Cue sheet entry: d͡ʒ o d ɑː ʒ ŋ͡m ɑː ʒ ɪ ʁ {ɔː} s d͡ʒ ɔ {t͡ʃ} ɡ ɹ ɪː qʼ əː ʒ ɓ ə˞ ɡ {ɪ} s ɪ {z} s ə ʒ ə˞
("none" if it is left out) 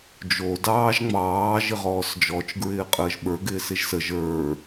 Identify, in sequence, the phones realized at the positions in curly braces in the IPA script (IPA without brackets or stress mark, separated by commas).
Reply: ɔː, t͡ʃ, ɪː, ʒ